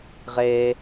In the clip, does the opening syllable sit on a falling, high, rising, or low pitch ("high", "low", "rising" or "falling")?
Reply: low